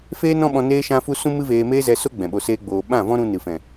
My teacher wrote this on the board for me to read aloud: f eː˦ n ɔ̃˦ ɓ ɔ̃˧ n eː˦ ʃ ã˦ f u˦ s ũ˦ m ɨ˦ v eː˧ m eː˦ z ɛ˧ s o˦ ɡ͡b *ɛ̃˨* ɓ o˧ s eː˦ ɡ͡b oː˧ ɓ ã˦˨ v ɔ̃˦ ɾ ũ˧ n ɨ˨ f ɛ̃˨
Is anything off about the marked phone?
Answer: no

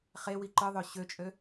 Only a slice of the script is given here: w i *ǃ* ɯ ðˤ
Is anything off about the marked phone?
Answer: no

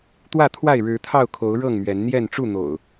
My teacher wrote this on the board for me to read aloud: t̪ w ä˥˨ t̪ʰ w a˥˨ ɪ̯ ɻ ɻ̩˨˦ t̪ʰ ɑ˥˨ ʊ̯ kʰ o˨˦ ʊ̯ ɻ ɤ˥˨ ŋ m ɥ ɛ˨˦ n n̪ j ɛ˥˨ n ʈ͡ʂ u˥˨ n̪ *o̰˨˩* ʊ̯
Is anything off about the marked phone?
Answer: no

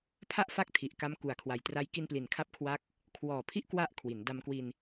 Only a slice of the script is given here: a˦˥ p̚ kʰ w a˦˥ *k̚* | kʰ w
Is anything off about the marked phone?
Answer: no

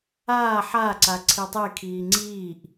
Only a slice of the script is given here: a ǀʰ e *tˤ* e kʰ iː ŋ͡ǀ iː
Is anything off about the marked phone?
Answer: no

